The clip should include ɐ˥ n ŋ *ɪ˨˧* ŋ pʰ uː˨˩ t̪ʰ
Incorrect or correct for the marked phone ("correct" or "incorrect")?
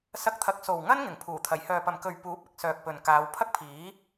incorrect